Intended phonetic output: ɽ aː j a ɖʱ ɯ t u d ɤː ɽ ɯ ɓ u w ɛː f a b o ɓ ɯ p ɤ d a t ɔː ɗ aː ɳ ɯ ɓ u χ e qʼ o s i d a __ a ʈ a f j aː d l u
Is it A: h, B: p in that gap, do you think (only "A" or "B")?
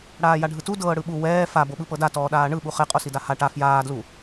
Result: A